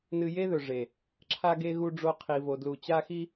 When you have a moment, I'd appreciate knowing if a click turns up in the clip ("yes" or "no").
yes